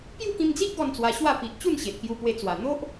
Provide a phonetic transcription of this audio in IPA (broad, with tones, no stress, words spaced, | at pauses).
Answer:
pju˥˧kĩ˧md͡zi˦ʔ ɡɔ˥˧nt͡swa˧ɕwa˥˧ pi˨ʔ t͡ɕu˥˧nɕe˨t̚kju˧pwe˧ t͡swa˨˩n̪o˦ʔ